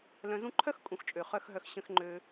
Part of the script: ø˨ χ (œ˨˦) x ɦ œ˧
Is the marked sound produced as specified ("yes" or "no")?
no